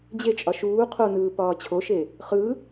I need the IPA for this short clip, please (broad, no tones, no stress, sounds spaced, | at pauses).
d͡ʑ e t͡ʃʼ ɒ ʃ uː qʰ o n ɯː p ɒː t͡ɕʰ o ʃ e | χ ɯ